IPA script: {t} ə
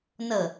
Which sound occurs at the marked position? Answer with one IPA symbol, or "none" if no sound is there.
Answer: n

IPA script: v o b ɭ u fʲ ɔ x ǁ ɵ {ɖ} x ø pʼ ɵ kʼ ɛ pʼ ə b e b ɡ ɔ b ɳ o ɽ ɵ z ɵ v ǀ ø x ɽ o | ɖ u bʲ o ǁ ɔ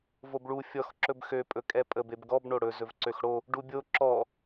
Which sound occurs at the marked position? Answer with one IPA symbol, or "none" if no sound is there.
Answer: b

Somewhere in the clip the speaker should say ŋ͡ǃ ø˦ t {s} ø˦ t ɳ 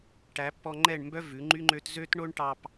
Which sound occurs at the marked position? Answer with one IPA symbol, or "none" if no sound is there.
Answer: z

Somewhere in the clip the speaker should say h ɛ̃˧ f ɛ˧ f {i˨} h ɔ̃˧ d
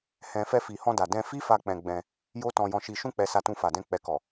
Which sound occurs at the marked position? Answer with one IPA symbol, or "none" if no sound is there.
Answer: i˨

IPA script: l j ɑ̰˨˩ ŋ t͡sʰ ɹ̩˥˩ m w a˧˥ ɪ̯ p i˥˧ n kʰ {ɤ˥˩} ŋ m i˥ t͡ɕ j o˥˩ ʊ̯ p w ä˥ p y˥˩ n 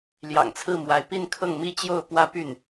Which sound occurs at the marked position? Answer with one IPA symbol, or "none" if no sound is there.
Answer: ɤ˥˩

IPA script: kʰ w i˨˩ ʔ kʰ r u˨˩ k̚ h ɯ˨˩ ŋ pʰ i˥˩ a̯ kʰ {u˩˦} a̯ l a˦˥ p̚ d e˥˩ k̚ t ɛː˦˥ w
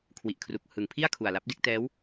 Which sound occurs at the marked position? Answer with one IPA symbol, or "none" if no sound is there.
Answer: u˨˩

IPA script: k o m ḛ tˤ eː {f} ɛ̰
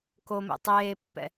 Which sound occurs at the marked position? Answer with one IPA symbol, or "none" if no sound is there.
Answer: pː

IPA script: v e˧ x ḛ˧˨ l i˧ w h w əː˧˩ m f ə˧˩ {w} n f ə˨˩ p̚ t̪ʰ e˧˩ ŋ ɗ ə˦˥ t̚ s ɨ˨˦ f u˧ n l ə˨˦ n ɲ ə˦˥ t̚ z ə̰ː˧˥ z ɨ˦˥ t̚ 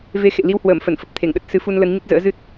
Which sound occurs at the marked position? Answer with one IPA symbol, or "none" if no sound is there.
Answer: none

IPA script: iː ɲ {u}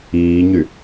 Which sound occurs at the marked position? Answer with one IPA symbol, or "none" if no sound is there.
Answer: y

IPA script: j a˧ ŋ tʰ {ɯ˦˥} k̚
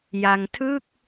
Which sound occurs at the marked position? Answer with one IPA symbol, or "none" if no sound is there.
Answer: ɯ˥˩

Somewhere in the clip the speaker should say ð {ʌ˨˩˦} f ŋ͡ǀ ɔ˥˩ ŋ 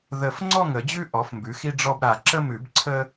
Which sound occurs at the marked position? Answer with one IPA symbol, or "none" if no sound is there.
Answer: ə˨˩˦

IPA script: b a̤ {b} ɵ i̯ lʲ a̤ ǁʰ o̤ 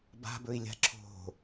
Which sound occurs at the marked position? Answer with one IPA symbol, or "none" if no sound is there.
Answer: b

